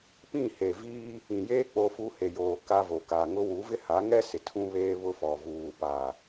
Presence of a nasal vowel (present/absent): present